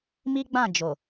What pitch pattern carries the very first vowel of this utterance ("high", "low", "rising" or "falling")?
high